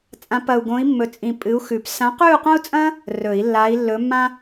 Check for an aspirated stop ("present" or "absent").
absent